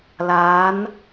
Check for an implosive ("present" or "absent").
absent